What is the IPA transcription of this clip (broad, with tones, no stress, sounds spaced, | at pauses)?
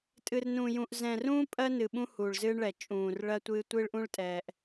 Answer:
tʼ ɨ˨ r n ũː˨ j ũ˨ ʔ z ɛ̃˨ r ũː˦ pʼ ɜ˦ n ɨ˨ ɓ ũ˦ h uː˨ ɭ z ɨː˦ ɳ ɭ ɛ˨ t͡ʃʼ ũː˨ r ɭ ɜ˦ tʷ ɨː˦ tʷ ɨː˦ ɭ ʔ ũ˦ ɭ tʼ ɛː˨ ʔ